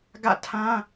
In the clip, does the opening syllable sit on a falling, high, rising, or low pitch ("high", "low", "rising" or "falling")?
falling